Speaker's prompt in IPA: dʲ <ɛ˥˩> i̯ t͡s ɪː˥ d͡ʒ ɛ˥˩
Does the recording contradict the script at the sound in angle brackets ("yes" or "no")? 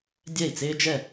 no